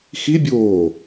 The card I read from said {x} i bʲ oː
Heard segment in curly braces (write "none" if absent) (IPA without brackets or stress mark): x